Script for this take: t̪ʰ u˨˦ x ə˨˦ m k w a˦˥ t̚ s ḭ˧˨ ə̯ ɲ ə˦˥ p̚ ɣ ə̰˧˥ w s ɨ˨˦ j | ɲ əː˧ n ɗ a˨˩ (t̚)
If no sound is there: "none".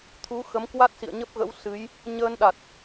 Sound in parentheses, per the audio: t̚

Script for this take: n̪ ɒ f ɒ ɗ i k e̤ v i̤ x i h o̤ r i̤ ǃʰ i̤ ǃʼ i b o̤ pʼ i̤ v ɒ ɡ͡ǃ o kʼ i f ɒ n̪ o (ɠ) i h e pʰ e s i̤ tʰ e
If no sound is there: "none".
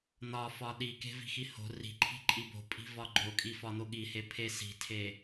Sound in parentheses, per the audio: ɠ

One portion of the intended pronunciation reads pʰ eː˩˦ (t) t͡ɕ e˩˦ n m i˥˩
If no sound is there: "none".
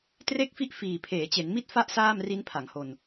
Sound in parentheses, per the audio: none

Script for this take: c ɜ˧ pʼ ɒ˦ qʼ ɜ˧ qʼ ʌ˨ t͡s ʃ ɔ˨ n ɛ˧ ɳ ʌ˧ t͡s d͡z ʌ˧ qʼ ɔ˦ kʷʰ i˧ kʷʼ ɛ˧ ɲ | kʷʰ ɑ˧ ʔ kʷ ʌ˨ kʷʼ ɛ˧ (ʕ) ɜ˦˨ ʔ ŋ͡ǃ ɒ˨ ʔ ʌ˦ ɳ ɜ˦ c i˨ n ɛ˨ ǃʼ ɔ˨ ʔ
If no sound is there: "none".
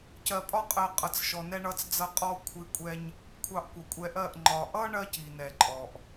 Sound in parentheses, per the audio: ʔ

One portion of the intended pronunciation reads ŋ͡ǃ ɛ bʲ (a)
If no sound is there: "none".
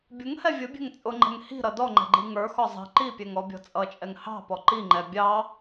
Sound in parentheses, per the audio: ɑ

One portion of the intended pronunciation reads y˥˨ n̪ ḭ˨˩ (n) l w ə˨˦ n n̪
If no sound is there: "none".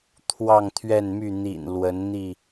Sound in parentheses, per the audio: n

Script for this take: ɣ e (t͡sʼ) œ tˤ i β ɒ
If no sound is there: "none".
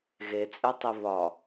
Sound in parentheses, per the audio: t͡sʼ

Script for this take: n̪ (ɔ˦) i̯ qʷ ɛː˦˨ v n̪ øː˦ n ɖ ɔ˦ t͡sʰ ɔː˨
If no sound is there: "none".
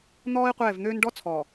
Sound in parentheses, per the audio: ɔː˦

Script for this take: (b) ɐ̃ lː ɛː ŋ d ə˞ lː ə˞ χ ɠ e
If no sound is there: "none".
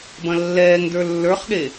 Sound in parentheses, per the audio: b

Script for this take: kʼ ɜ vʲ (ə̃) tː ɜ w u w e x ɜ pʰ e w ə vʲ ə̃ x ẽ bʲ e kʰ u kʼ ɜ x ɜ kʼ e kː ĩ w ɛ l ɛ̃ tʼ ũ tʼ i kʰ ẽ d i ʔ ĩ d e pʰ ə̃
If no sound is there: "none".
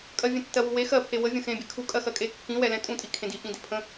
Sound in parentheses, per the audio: ɛ̃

